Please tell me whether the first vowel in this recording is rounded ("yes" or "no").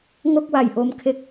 yes